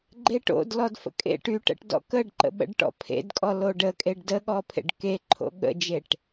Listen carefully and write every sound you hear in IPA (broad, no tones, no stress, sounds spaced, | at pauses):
ɡ͡ǃ e ʈ o̰ d l ɔ d f ə̰ kʼ ḛ ʈ y ʈ ə̰ ʈ d ɔ̰ k ə ɖ ǃ ə̰ ɓ ə̰ ɖ ʈ ɔ̰ pʰ ḛ d kʼ ɔ l o ɖ ə kʼ e ɖ d ə ɠ ɔ pʰ ḛ ɖ k e ǃʰ o̰ ɠ ə̰ d͡ʒ e ʈ